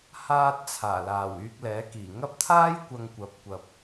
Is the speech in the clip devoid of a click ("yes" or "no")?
yes